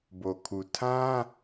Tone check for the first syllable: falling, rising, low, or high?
low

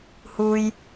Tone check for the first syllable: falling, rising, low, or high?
high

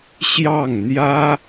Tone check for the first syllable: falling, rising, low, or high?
falling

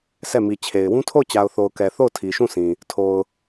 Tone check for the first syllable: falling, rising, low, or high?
falling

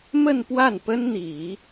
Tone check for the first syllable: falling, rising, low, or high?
falling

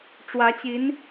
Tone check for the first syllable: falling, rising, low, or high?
rising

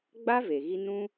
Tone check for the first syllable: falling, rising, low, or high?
high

